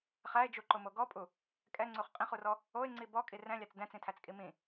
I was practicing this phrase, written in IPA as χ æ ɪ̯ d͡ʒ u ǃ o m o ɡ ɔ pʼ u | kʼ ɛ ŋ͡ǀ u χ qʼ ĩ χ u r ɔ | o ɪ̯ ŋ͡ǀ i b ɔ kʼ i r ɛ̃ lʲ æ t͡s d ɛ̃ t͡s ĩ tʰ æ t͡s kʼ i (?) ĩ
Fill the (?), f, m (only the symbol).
m